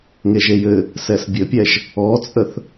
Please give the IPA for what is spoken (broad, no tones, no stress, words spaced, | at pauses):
ŋeʒejɘ | sɛsbʲɘpʲɛʒ | ɔt͡sʼəθ